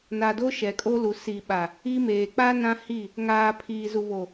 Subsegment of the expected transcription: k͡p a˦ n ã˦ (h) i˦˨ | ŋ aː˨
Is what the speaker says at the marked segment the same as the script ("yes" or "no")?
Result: yes